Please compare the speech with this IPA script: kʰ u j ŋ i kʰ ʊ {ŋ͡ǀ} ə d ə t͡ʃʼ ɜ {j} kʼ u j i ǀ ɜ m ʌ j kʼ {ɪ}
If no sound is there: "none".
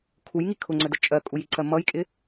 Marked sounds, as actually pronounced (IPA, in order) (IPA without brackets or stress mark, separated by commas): ŋ͡ǀ, none, ɪ